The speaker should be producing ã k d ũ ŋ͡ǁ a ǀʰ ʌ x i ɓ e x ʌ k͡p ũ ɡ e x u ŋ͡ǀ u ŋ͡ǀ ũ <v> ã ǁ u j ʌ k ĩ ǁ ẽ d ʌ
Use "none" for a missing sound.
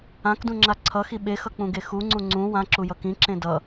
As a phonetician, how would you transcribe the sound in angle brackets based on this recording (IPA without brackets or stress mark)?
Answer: w